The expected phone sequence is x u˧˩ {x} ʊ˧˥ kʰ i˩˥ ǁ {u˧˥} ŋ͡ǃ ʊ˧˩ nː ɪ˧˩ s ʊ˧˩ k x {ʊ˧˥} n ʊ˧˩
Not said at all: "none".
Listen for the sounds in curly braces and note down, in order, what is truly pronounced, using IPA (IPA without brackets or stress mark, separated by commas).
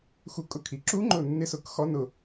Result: kʼ, u˧˥, ɔ˧˥